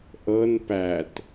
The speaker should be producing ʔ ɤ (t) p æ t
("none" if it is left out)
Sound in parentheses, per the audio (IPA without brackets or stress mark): n